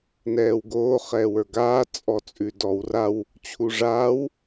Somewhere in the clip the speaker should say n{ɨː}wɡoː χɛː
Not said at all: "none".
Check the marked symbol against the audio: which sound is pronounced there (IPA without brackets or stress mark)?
ɛː